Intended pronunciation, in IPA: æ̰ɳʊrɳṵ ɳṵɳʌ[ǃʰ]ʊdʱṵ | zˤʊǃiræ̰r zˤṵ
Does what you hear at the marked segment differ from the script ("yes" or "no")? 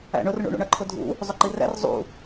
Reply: no